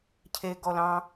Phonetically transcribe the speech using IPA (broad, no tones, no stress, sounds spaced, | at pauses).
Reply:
cʰ e ɡ ɔ l ɑ̃